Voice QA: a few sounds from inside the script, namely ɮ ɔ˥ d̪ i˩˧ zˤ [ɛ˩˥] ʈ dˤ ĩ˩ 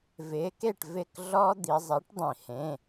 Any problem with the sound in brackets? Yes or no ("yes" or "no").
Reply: no